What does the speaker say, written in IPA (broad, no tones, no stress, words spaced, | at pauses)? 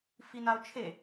finao̯t͡ʃʰe